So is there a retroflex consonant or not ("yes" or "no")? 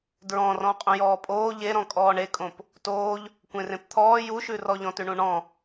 yes